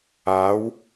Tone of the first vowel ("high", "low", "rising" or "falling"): rising